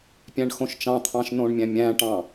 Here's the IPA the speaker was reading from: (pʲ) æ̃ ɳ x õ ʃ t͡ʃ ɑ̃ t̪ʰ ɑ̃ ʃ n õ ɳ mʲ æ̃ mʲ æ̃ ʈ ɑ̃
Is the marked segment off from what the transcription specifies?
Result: no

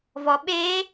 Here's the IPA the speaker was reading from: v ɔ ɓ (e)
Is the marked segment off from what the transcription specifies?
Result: no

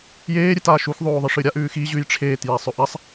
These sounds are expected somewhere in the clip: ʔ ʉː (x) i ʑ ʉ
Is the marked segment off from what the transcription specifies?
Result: no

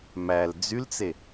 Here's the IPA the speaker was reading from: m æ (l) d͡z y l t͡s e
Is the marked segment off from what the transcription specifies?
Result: no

